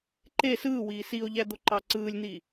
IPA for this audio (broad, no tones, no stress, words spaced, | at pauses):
ǃe sɯːwiː sio̯ʎæd̪oǃɑ ǀɯːlʲn̪i